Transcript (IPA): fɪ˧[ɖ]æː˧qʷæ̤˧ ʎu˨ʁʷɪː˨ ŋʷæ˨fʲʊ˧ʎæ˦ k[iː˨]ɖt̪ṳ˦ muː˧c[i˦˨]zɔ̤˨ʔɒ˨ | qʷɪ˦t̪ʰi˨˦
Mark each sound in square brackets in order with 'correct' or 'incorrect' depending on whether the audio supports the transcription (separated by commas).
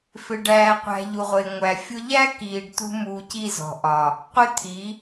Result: correct, incorrect, correct